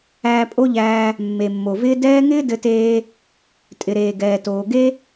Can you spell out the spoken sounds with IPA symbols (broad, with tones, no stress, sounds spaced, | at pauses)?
æː˧ pʼ o˥ ʎ æː˧ | mː e˩ mː o˩ v ɪː˥ d ɛː˥ ŋ ɪː˥ d ɘ˧ t eː˧ | tʼ ɪ˩ ɾ eː˩ ɡ ɛː˩ t oː˩ ɡ e˥